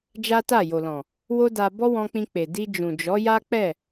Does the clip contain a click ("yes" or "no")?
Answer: no